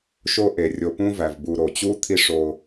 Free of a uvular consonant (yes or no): yes